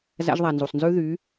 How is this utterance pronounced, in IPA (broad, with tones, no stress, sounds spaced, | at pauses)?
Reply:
z æ̰˧ ʒ ðˤ æ˨ n z u˨ sˤ n z ʉ˦ ð y˨˦